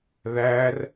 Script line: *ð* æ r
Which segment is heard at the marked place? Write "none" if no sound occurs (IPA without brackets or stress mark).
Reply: ð